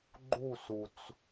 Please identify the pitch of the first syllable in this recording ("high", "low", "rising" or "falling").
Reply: falling